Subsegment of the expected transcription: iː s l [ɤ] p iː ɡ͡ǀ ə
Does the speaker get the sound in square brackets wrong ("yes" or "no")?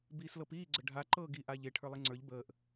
no